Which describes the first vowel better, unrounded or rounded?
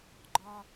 rounded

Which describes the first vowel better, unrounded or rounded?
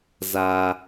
unrounded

